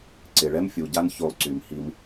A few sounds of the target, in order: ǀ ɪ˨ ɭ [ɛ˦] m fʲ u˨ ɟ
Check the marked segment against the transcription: correct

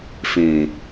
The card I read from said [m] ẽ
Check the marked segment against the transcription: incorrect: f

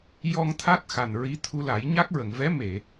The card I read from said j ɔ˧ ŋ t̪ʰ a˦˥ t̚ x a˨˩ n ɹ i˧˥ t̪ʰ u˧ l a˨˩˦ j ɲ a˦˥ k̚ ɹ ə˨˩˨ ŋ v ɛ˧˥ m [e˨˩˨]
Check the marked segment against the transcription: correct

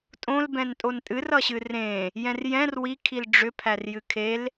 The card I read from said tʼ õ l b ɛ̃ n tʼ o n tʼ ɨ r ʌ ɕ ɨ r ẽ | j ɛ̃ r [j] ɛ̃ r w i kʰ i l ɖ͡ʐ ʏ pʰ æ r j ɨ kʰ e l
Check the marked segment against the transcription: correct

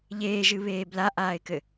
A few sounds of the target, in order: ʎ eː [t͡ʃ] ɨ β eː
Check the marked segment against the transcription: incorrect: ʒ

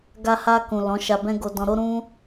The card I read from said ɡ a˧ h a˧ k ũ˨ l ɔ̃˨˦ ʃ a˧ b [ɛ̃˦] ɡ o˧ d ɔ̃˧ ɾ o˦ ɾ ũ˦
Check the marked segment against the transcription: correct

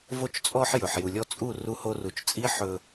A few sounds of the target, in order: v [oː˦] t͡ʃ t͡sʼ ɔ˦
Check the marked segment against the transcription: incorrect: o˦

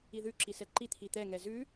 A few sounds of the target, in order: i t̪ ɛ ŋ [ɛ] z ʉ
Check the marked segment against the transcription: correct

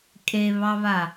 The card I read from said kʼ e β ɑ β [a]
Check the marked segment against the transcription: correct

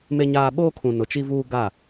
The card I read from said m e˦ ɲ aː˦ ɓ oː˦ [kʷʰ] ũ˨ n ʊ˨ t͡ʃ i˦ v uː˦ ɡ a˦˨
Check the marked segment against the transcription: incorrect: kʰ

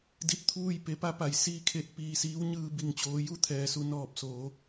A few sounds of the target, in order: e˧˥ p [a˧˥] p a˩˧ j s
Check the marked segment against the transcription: correct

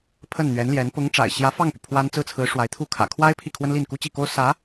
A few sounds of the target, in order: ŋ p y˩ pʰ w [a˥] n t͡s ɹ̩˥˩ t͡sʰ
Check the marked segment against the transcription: correct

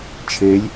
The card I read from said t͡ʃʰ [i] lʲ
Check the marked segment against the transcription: incorrect: e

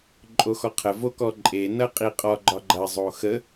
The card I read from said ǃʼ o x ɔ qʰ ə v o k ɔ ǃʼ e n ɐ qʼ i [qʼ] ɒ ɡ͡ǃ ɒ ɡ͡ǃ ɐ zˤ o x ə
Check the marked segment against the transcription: correct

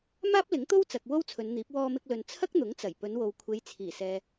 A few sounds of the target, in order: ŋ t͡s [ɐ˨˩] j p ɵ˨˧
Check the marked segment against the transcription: correct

